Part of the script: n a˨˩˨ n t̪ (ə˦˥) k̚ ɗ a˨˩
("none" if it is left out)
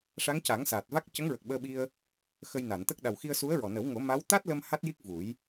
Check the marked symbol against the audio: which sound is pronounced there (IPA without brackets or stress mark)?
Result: ə˦˥